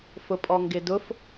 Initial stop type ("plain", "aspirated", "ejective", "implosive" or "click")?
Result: ejective